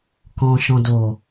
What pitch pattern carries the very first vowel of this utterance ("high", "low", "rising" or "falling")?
low